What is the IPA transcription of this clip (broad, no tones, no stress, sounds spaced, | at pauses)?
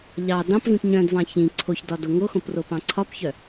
ʎ ɑ d ɑ̃ p v ĩ p ɲ œ̃ d v ɑ̃ ç ĩ ǀʰ o ç d ɒ d o ŋ o x õ p r o p ɑ̃ ǀʰ ɒ p ç œ